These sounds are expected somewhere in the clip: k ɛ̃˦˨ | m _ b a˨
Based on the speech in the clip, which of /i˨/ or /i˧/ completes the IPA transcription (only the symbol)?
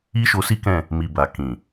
i˨